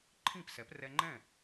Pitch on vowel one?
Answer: falling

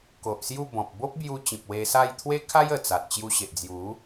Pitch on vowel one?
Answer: low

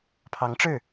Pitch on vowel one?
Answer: rising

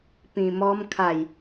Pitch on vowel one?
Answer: low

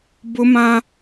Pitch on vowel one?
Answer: high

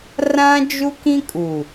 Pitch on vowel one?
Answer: high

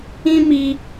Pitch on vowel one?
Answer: high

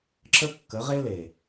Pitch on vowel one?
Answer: high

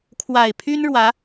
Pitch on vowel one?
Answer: low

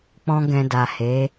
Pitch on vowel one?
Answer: high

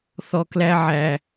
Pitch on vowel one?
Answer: low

